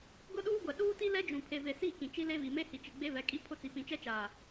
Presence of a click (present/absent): absent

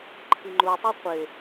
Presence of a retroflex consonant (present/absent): absent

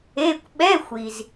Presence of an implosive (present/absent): present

